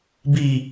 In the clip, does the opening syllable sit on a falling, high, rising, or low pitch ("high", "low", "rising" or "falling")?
falling